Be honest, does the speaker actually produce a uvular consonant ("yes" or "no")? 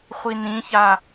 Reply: yes